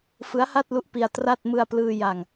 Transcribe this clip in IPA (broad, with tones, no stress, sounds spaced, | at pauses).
f ɯ˦˥ a̯ h a˥˩ t̚ l u˦˥ ʔ p i˧ a̯ t r a˥˩ t̚ m ɯ˧ a̯ p l ɯː˧ j a˧ ŋ